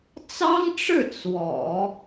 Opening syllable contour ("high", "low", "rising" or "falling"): high